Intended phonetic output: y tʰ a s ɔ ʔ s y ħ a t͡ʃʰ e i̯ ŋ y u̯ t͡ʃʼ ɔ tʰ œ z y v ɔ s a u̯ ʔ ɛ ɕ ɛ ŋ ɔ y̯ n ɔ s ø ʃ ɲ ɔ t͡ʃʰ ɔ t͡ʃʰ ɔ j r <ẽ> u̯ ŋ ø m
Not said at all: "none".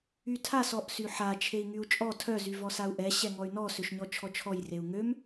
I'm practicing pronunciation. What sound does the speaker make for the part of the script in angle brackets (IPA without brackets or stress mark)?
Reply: e